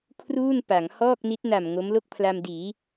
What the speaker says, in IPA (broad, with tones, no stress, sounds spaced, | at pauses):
kʰ r uː˥˩ n p a˩˦ ŋ h ɔː˥˩ k̚ n i˦˥ t̚ n a˨˩ m ŋ o˦˥ m l o˥˩ k̚ pʰ l a˧ m d iː˩˦